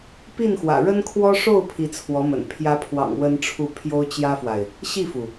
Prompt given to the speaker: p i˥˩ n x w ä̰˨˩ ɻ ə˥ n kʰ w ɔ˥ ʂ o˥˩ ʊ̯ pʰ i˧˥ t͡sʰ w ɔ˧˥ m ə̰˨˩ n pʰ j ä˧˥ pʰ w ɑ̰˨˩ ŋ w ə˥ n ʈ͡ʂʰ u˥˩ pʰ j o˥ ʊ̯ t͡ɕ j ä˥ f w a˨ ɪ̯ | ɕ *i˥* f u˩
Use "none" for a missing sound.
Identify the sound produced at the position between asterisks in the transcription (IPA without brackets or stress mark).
i˥˩